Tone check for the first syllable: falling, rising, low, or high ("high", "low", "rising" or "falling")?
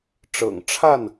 low